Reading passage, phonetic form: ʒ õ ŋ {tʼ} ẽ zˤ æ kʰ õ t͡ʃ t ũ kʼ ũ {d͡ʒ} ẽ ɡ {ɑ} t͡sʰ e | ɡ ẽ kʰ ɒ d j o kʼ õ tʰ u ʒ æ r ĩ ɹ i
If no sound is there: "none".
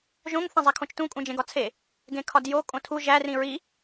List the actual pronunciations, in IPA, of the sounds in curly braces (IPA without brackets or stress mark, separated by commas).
θ, d͡ʒ, ɒ